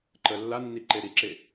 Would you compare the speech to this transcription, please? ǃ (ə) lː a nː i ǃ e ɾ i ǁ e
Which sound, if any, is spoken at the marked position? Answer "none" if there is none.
ə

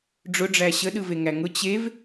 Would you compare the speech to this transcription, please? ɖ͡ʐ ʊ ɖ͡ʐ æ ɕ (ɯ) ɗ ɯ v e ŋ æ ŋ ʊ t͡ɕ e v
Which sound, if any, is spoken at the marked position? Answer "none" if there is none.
ə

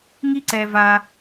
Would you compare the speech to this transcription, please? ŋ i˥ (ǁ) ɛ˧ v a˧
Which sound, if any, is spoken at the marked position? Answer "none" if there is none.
ǀ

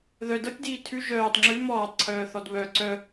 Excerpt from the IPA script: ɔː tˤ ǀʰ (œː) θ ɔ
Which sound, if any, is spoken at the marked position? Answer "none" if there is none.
œː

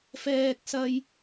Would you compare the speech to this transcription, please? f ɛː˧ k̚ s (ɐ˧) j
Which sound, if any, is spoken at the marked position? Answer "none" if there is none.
ɐ˧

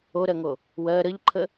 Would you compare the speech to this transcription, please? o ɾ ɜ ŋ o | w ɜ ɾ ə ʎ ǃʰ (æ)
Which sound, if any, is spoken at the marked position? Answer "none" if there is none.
ə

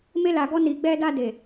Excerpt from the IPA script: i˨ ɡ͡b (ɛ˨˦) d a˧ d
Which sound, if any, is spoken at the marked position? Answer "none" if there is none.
ɛ˧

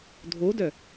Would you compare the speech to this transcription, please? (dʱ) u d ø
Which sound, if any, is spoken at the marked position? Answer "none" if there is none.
dʱ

